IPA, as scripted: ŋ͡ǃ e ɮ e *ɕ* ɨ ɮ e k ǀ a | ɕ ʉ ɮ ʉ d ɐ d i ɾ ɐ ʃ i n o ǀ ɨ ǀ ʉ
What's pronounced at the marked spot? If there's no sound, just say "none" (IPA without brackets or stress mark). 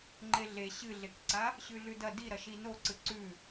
ɕ